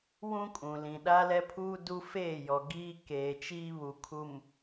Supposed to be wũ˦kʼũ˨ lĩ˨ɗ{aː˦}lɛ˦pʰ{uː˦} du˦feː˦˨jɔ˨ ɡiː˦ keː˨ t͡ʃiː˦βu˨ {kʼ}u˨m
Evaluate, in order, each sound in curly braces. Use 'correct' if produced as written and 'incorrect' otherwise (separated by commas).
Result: incorrect, correct, incorrect